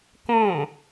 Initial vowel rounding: rounded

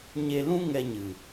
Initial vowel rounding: unrounded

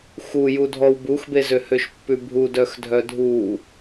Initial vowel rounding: rounded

